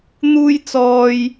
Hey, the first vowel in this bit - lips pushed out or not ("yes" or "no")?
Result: yes